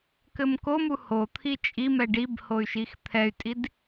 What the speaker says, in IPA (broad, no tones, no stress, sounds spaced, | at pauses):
k ɘ m k o m u h o t̪ʰ i t͡ʃʼ i m ɛ ɖ i b h o y̯ ʃ i x t̪ʰ ɛ y̯ tʼ i d